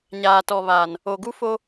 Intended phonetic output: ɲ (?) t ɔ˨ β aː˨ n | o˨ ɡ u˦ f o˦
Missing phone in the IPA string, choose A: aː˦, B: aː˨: B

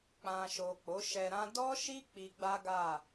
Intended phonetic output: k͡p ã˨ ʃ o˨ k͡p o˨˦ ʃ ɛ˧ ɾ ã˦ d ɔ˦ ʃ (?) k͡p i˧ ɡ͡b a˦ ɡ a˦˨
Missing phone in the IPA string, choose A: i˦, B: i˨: A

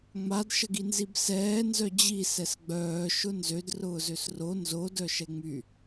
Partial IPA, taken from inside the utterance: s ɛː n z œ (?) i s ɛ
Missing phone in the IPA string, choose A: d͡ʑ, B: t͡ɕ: A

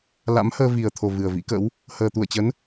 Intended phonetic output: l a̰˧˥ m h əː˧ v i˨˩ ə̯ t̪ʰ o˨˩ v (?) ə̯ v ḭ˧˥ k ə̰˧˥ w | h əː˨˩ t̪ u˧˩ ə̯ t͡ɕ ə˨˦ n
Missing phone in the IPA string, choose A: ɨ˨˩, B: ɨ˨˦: A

